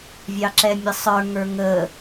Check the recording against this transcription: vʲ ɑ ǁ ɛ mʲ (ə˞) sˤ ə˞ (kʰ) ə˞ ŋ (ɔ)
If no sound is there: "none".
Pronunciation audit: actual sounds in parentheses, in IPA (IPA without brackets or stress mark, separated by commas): ə, ŋ, ə